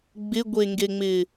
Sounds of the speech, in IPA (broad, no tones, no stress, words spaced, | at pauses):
ɡ͡bɪɡʷeŋɡeŋ͡mɪ